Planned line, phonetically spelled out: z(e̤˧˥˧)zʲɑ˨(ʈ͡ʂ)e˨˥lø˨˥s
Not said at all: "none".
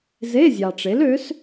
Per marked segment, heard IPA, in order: e˧˥˧, ʈ͡ʂ

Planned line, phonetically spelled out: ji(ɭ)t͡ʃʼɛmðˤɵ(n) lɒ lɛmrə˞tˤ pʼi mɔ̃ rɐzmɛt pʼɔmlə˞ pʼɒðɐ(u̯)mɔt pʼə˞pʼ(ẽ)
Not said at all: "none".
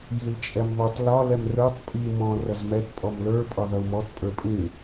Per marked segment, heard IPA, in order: l, tˤ, u̯, ĩ

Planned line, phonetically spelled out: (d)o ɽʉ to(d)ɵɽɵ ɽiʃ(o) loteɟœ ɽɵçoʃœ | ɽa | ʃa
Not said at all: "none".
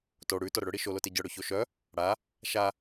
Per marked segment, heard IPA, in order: t, ɾ, o

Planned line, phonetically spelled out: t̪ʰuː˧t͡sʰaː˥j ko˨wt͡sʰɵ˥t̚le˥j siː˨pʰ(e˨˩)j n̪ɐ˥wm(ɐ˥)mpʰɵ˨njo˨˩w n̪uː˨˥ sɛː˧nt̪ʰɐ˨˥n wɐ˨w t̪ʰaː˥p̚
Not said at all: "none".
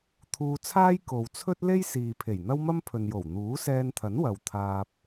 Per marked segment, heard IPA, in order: e˨˩, ɐ˥

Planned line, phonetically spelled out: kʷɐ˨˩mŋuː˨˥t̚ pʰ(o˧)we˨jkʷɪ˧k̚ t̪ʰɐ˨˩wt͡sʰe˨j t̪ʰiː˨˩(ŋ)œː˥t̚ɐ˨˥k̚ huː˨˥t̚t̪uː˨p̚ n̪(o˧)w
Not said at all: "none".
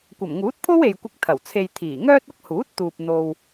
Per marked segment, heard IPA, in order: o˥, ŋ, o˧

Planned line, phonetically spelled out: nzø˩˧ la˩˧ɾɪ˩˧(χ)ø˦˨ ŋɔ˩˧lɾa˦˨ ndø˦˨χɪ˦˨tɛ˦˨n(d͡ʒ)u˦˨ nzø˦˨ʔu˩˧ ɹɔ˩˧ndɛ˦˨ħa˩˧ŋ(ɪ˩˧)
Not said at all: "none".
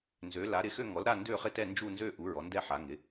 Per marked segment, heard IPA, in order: x, d͡ʒ, ɪ˩˧

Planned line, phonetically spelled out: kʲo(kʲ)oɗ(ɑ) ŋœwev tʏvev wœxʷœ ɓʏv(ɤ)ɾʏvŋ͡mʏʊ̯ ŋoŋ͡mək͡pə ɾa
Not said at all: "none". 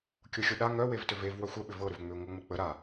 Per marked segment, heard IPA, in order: xʲ, a, ɤ

